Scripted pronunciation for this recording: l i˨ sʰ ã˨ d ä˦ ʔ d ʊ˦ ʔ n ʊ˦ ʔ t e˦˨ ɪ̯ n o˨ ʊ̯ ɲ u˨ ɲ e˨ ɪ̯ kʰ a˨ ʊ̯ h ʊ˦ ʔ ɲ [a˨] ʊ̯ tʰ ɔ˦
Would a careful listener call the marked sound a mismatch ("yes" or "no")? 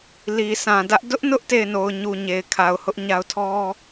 yes